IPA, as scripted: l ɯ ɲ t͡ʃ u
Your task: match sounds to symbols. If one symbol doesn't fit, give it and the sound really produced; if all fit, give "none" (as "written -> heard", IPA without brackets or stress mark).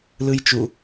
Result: ɲ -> j